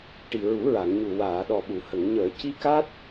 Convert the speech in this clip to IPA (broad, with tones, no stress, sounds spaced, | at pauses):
ʈ i˨˩ ɹ u˨˩˦ ɹ a˨˩˨ ŋ ɲ u˨˩ w aː˨˩˨ ɗ ɔ˨˩ ɓ u˨˩˨ h ə˨˩˨ ŋ ɲ əː˨˩˨ c i˧ k a˦˥ t̚